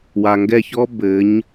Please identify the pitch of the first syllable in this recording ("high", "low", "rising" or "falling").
low